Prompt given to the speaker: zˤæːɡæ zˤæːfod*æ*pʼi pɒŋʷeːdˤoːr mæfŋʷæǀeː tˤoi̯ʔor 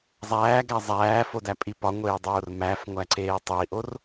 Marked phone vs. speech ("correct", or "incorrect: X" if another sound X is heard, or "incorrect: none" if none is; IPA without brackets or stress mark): correct